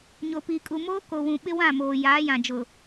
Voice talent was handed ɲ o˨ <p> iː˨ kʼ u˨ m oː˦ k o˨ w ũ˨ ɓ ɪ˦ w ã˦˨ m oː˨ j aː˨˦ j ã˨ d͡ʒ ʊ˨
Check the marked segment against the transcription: correct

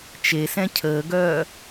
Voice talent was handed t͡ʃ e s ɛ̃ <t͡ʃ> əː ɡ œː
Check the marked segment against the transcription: incorrect: cʰ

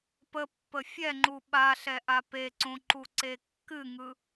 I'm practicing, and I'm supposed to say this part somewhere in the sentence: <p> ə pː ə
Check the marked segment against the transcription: correct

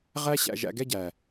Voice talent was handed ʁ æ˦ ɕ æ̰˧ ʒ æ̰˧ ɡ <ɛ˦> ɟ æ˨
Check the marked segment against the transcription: correct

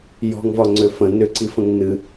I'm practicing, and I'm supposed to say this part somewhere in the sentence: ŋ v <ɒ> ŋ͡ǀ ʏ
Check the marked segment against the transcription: correct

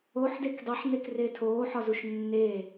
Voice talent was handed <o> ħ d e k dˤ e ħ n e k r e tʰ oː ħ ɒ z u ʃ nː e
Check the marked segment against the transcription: correct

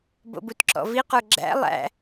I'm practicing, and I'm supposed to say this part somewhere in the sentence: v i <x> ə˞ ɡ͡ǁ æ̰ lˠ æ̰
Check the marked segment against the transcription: incorrect: q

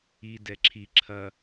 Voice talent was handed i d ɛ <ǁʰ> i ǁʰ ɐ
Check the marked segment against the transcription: correct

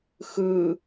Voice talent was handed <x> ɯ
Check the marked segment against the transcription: correct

